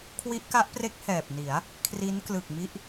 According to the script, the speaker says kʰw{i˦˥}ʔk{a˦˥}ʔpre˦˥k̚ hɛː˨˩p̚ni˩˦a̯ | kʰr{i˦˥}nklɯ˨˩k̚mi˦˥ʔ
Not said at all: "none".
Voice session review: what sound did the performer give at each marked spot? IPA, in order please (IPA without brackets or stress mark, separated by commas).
i˦˥, a˦˥, i˦˥